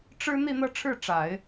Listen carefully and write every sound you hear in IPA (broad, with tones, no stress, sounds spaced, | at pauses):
ʈ͡ʂ ɻ̩˥ n̪ i˥˧ n̪ ɤ˥˧ ʈ͡ʂʰ ɻ̩˥˩ ʈ͡ʂ a˨˩˦ ɪ̯